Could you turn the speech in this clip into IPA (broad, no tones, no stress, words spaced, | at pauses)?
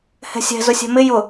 hɛ̤sʲɛ̤ zʊsʲɛ̤mɪ jʊ